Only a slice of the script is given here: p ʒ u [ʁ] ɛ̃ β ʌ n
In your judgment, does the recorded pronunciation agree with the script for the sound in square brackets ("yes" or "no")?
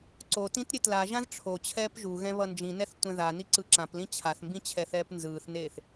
no